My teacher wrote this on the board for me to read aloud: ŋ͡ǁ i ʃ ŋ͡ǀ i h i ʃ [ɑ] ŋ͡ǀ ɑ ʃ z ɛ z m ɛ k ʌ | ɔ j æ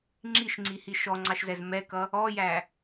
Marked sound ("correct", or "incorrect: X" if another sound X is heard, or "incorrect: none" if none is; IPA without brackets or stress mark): incorrect: ɔ